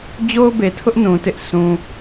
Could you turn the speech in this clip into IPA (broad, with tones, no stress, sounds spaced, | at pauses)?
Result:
d͡ʑ o˦ ʊ̯ b e˨ tʰ ʊ˦ ʔ n ũ˨ t ɪ˦ ʔ sʰ ũ˨